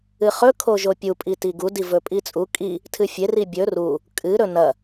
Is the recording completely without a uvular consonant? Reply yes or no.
no